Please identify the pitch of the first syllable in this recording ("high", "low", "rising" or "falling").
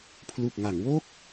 low